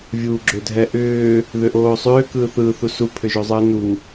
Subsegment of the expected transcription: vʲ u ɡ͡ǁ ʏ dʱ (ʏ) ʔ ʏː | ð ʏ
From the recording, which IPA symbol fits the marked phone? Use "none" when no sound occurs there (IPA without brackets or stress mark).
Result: ɛ